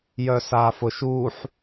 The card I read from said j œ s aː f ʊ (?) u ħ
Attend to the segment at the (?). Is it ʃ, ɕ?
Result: ʃ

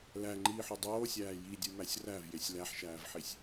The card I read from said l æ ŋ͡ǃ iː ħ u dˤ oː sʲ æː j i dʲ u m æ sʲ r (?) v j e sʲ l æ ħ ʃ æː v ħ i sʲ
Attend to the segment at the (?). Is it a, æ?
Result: æ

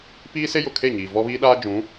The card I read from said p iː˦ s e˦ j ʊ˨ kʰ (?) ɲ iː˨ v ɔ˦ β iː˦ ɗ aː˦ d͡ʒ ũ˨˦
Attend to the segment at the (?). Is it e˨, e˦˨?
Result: e˦˨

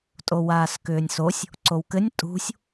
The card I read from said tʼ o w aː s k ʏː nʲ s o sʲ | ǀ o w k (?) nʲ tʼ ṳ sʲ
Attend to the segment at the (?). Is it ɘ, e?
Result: ɘ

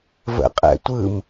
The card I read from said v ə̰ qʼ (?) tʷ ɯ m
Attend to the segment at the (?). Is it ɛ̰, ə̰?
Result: ɛ̰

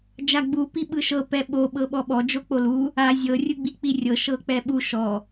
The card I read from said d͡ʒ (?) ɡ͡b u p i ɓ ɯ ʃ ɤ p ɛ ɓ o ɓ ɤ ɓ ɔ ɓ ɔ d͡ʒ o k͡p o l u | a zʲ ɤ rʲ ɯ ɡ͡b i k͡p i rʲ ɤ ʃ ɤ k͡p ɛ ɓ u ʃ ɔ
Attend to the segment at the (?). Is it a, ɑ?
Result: a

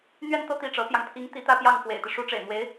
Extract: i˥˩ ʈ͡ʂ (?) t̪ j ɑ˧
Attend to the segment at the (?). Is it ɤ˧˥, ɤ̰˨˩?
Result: ɤ˧˥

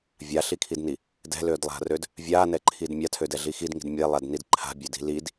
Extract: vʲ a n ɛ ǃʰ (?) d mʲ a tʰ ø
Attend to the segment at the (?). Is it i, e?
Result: i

